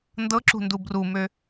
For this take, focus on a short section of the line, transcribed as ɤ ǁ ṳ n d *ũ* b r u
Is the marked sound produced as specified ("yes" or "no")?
no